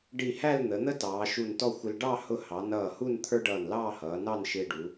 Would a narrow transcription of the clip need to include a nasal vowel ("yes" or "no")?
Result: no